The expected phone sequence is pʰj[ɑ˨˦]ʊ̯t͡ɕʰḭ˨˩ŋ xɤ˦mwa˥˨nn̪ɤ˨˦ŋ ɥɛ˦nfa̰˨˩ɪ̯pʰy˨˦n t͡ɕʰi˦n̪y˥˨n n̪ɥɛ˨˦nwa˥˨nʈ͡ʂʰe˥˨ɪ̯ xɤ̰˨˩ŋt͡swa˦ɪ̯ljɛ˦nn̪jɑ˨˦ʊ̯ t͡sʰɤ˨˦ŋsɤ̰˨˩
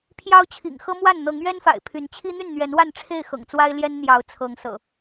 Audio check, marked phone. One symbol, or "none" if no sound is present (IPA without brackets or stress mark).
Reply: ɑ˦